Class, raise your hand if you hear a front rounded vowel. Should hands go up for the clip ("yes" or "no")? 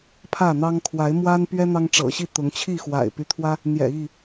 yes